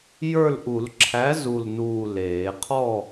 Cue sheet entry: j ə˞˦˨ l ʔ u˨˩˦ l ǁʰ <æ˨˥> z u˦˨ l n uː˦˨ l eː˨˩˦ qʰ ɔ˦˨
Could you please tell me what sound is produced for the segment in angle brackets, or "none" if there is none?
æ˨˥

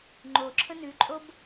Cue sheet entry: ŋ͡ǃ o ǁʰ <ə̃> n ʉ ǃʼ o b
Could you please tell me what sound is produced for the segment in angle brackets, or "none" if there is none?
ə̃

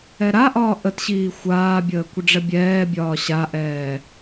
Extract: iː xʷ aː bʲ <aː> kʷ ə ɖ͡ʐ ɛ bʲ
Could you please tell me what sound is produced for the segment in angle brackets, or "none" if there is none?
əː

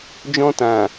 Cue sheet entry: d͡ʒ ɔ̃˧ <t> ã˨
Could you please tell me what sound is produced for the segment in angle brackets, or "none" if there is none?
t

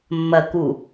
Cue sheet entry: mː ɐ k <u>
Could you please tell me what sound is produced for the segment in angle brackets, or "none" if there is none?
u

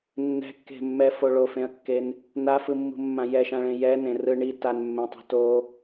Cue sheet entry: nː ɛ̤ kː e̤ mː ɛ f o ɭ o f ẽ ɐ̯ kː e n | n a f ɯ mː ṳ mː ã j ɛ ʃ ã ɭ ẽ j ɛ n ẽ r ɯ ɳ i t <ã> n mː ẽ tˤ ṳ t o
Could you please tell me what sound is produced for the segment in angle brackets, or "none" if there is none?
a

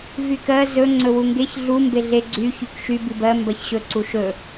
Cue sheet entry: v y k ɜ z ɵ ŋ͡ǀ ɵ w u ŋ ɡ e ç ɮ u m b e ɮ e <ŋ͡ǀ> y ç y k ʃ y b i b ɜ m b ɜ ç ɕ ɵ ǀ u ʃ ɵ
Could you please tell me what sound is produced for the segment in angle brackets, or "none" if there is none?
ɡ͡ǀ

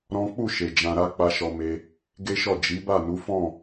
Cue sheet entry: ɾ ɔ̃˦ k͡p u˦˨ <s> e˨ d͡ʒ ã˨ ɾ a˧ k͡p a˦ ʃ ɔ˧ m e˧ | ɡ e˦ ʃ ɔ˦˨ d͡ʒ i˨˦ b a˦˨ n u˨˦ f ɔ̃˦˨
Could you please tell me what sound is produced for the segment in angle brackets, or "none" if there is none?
ʃ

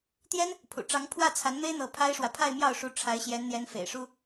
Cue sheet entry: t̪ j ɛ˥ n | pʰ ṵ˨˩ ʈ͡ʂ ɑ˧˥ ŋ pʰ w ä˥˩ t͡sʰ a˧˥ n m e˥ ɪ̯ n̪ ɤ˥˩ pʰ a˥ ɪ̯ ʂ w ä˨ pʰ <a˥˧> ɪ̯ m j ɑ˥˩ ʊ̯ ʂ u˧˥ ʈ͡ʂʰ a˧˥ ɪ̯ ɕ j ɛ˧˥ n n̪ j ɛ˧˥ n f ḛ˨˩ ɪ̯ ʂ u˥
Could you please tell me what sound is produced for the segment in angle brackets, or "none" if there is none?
a˥˧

